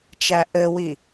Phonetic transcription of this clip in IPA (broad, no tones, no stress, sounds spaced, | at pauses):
t͡ʃ æ ʔ ɘ w i